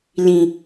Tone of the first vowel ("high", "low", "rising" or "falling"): low